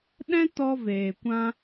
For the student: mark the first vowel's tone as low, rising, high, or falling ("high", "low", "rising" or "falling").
high